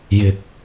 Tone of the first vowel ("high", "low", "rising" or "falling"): low